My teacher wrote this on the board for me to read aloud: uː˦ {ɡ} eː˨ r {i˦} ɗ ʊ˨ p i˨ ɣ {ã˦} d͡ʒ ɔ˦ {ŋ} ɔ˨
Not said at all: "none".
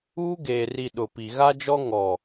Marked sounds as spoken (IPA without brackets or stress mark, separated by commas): ɡ, i˨, a˦, ŋ